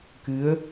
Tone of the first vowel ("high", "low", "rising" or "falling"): rising